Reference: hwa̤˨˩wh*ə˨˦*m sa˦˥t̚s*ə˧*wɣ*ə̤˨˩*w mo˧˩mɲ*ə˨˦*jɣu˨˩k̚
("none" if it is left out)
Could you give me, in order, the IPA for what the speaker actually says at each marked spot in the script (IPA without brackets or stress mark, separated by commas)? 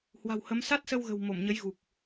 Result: ə˨˦, ə˧, ə̤˨˩, ə˨˦